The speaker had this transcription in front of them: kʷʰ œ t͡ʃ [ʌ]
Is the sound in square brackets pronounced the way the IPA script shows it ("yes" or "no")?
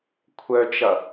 yes